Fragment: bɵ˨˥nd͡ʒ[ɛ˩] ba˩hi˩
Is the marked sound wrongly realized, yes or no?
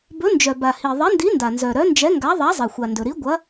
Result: yes